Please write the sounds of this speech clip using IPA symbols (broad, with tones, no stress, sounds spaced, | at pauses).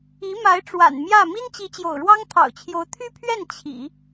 i˧˥ m a˧˥ ɪ̯ ʈ͡ʂ w a̰˨˩ n m j ä˥˩ m i˥ n t͡ɕ i˧˥ t͡ɕ j o̰˨˩ ʊ̯ ɻ w ɑ˥ ŋ t̪ʰ ɑ̰˨˩ ʊ̯ t͡ɕʰ j o˧˥ ʊ̯ t̪ʰ y˥ pʰ ɥ ɛ˥˩ n t͡ɕʰ ḭ˨˩˦